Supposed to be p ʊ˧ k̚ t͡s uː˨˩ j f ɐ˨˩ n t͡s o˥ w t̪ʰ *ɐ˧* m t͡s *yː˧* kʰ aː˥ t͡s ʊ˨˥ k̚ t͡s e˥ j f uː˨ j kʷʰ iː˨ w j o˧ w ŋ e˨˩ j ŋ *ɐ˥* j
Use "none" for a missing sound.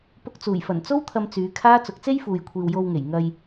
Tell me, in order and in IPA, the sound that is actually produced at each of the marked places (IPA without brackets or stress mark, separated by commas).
ɐ˧, yː˨˧, ɐ˧